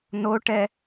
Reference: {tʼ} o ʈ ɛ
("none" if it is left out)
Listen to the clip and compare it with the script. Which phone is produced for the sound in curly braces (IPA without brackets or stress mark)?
n